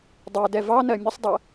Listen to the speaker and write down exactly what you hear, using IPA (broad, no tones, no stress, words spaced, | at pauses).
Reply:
dˤɜ dɛvɑnɜ mʲəsˤdˤɜ